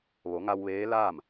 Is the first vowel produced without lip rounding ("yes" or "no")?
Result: no